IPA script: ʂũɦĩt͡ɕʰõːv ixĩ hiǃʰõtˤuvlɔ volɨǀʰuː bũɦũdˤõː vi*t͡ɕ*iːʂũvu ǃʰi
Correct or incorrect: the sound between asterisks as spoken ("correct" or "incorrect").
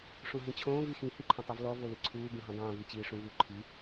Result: correct